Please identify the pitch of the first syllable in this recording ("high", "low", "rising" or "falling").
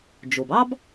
low